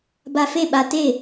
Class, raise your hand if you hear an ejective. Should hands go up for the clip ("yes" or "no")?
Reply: no